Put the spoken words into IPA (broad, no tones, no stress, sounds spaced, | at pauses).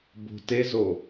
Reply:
b o̤ t e z o